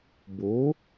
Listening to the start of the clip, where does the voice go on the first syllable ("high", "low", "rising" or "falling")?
rising